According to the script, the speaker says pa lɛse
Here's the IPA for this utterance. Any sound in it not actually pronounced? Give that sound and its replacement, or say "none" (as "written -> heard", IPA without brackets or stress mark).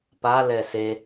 none